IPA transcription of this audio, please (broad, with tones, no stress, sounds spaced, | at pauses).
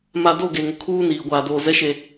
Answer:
m a˨ d o˦˨ ɡ eː˨ ŋ ʊ˨ kʰ uː˦ n iː˨ ɡʷ aː˨ d oː˨ z ɛ˨˦ ʃ e˨